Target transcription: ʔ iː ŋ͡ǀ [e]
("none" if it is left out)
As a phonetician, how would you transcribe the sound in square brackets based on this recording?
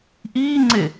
e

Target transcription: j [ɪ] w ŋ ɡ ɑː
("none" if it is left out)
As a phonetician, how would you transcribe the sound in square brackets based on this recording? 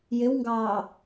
ɪ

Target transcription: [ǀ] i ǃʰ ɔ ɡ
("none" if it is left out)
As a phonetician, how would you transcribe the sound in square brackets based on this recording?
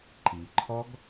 ǃ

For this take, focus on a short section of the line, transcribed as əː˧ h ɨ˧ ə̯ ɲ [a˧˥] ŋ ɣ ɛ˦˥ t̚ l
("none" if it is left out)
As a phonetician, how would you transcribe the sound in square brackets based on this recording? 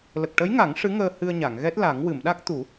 a˨˩˨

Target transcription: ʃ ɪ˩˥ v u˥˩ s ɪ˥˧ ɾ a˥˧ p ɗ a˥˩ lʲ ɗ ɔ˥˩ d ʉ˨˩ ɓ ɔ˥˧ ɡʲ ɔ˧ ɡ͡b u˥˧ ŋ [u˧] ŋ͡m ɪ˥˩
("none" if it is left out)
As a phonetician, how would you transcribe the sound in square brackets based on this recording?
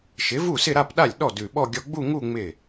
u˥˧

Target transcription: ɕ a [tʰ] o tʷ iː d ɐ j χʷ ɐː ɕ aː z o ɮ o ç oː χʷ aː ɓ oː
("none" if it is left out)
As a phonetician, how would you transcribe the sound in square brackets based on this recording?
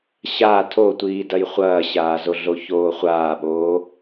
tʰ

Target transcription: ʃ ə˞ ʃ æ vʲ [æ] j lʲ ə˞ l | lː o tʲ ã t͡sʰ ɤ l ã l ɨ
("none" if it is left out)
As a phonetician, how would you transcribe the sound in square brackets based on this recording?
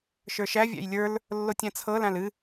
æ̰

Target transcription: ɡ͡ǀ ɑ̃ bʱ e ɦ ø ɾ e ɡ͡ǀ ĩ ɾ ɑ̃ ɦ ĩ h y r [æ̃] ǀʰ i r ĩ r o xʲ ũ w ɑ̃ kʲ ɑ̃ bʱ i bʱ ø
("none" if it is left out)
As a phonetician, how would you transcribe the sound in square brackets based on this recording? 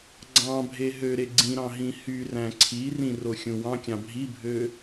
æ̃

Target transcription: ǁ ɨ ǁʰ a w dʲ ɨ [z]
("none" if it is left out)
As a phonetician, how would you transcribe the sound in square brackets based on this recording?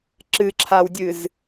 z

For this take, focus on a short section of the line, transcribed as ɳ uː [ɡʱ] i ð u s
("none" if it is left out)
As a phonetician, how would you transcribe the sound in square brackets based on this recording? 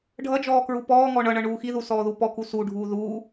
x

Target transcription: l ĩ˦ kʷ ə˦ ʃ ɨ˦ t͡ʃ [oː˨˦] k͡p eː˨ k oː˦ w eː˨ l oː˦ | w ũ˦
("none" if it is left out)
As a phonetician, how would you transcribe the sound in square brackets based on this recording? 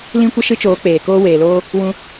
oː˨˦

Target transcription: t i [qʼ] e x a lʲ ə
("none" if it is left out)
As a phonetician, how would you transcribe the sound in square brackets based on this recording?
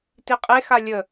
qʼ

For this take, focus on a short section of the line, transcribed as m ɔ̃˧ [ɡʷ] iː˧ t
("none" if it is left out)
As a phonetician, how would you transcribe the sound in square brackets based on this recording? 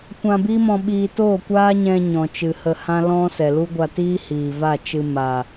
ɓ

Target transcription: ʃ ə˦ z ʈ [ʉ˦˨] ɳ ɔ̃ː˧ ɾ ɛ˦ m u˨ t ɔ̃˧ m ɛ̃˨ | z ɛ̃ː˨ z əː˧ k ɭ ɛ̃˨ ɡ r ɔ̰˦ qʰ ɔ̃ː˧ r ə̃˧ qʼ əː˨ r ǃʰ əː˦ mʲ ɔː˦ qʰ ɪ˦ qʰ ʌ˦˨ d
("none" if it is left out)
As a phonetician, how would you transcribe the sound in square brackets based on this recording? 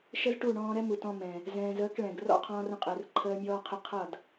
u˦˨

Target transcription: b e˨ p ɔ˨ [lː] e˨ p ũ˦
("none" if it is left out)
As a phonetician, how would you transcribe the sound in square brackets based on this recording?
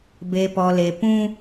l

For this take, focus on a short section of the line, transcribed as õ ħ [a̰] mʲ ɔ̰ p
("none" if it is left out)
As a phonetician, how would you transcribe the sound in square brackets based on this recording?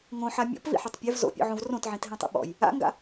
a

